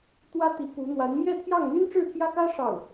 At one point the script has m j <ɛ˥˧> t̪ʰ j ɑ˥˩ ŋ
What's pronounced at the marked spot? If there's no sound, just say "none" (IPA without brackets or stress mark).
ɛ˥˧